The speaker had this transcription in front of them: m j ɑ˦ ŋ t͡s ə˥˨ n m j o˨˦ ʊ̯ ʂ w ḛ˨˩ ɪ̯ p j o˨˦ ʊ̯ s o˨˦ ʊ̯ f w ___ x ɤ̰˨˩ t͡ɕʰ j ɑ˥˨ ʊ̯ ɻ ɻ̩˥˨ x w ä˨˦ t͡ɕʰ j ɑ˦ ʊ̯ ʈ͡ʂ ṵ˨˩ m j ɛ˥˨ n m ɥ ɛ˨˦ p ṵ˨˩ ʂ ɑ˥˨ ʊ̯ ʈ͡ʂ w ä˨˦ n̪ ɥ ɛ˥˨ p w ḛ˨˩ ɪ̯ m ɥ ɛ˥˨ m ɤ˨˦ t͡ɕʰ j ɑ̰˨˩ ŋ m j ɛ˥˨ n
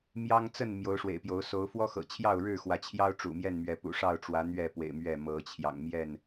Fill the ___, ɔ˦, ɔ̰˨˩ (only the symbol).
ɔ˦